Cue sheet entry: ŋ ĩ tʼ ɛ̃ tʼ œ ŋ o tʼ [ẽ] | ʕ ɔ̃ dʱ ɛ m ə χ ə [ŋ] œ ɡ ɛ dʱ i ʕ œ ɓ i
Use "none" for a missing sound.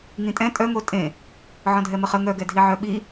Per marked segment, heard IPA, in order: ẽ, ŋ

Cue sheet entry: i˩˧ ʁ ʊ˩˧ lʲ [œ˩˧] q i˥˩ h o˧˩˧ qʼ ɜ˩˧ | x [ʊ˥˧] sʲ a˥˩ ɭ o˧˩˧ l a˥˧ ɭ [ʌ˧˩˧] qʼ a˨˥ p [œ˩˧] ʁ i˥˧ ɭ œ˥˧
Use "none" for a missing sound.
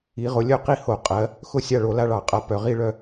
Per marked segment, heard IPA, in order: œ˥˩, ʊ˥˧, ɑ˧˩˧, œ˩˧

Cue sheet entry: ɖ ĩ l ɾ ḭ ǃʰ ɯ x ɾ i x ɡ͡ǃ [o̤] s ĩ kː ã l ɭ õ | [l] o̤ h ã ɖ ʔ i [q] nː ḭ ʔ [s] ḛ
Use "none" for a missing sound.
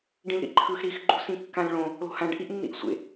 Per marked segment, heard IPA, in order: ṳ, l, ʔ, sʷ

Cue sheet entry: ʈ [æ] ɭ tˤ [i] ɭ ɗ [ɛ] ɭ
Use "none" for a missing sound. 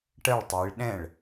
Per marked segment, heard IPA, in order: ɜ, i, ɛ̃

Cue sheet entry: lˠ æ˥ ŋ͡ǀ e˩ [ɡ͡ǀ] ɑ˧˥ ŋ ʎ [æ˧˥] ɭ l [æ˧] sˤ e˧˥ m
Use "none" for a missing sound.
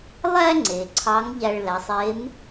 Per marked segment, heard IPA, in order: ǀʰ, æ˧, æ˩˧

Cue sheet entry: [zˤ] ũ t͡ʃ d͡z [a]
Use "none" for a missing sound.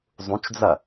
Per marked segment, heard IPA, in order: zˤ, ɐ

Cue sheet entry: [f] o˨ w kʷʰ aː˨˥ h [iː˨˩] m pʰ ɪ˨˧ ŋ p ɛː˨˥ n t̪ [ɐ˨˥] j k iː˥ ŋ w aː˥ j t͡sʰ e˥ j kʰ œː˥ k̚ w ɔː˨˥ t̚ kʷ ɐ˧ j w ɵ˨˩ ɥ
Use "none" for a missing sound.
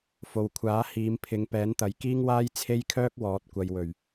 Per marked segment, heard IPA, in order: f, iː˨˧, ɐ˨˥

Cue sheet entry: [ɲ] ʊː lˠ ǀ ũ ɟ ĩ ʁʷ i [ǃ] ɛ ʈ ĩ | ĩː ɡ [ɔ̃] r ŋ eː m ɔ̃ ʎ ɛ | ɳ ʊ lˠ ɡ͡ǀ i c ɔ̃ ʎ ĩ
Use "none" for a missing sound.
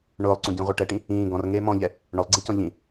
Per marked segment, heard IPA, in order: ɳ, ʈ, ɔ̃

